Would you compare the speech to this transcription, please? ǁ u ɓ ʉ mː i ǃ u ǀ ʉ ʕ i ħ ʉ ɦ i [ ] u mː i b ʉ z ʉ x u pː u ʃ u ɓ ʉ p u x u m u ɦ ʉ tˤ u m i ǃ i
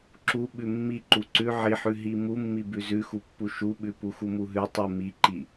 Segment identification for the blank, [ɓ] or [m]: m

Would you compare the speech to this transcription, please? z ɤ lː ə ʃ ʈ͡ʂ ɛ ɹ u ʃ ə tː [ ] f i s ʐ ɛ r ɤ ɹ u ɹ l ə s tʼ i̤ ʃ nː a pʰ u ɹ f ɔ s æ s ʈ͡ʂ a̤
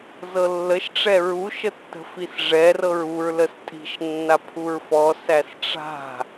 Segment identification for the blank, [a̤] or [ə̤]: ə̤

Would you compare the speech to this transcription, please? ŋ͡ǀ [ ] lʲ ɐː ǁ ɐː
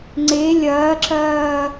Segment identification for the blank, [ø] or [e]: e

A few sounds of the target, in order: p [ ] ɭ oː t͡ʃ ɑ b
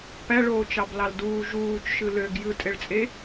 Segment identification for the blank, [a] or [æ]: æ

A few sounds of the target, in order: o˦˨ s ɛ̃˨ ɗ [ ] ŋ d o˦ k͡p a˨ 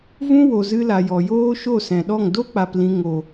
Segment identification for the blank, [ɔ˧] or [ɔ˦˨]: ɔ˦˨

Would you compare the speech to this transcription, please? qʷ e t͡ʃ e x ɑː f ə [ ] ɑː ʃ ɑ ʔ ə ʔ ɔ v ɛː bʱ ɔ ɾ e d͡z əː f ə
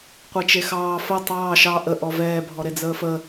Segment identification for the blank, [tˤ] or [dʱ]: tˤ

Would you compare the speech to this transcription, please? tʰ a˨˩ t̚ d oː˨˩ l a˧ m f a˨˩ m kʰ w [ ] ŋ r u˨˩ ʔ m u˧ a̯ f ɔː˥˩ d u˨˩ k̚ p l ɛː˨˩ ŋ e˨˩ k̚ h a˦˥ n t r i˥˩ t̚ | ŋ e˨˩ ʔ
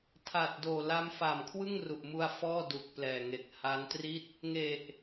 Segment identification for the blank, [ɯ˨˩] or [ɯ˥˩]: ɯ˥˩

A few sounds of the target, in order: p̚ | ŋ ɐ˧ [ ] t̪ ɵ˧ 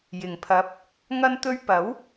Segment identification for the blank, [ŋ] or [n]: n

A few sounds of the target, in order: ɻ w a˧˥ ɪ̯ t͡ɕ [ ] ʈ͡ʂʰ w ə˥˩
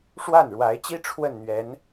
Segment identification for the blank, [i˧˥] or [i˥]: i˥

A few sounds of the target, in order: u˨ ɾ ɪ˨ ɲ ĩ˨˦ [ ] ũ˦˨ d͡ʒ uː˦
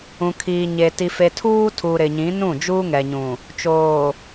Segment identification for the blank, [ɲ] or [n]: n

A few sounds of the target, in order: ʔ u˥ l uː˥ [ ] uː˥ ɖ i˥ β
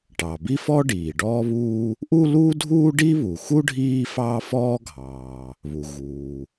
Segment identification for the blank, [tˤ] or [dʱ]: dʱ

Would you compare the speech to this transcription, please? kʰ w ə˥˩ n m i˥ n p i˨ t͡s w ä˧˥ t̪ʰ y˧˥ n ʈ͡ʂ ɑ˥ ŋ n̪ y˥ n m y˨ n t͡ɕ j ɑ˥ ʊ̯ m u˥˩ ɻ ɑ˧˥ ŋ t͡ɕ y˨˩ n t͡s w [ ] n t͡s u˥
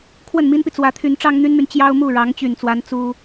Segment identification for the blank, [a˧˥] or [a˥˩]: a˧˥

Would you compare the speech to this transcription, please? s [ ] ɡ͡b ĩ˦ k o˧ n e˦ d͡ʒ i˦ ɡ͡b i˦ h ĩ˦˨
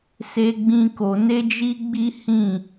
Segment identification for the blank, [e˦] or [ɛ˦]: e˦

